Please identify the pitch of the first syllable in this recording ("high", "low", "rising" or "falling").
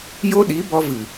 high